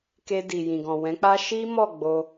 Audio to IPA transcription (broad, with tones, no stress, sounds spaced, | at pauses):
k e˧ d i˨ j ĩ˨ ɡ ɔ̃˨ w ɛ̃˨˦ k͡p a˦ ʃ i˦ m ɔ˦˨ ɡ͡b o˧